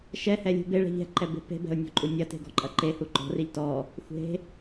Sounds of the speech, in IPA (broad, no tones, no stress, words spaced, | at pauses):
ʃɛhɛ lʲṳbeɭɛ̤ ʎɛ̤ǃɛ be̤pe̤bɛ̤ʊ̯ nʲɔ̤ǃʼunʲɐte̤ ɡɔ̤ǃʼɐǃehu ǃɔ̤riʎ tɔ | xʷe̤